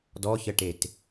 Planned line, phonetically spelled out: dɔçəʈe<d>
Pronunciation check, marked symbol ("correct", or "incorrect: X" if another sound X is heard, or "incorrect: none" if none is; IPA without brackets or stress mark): incorrect: t